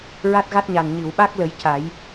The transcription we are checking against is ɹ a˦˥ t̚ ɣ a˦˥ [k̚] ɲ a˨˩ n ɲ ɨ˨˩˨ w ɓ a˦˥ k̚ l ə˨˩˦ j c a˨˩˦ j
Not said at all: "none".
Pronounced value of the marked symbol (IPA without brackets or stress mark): t̚